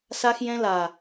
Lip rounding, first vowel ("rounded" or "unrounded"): unrounded